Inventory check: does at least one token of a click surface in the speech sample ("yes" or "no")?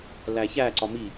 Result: yes